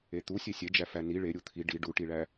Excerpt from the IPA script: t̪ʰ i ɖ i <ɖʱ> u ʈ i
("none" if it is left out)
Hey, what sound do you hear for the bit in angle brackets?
ɖ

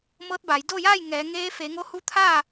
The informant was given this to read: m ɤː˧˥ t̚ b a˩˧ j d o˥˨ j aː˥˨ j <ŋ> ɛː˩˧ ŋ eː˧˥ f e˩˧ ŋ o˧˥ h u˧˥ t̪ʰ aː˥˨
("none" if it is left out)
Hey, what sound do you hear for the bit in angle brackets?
ŋ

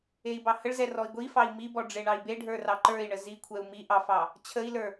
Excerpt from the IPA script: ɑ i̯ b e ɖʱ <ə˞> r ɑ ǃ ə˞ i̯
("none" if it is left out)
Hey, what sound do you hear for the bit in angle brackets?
ə˞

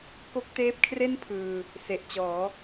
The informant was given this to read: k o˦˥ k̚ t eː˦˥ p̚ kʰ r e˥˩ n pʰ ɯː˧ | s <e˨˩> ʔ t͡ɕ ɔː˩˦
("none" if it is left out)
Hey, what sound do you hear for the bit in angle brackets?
e˨˩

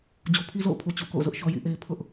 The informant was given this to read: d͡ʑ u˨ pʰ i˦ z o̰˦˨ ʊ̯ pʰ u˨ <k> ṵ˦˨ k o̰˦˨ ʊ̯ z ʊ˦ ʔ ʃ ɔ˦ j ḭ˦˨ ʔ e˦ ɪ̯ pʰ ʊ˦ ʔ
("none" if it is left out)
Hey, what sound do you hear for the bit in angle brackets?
t͡ɕ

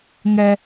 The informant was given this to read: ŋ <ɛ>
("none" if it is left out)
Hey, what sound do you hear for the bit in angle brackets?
ɛ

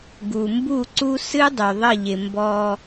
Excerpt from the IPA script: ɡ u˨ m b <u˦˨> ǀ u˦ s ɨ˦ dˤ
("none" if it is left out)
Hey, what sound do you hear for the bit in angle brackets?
u˦˨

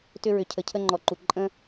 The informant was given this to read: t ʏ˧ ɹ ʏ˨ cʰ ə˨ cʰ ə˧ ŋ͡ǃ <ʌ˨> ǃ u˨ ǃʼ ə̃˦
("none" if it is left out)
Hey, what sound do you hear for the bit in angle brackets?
ɔ˨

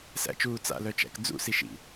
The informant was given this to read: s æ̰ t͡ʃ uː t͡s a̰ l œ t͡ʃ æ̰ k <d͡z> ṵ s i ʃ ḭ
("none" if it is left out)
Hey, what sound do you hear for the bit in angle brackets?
d͡z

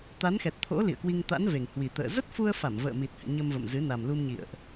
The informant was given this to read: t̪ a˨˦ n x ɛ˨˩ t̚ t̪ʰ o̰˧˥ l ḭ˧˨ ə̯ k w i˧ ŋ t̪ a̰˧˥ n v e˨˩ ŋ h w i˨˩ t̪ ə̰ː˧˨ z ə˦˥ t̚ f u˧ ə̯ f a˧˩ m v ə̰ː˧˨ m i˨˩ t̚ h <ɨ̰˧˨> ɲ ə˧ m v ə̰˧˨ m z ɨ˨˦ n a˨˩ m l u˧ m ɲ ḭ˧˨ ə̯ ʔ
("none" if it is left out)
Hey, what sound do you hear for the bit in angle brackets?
ɨ̰˧˨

